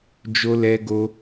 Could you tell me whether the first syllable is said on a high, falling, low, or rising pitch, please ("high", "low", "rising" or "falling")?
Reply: high